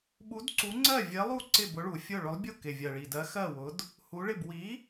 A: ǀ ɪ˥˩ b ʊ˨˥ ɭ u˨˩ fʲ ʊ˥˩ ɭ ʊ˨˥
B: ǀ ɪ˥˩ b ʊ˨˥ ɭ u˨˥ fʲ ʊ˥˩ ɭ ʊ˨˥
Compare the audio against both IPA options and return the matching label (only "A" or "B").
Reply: A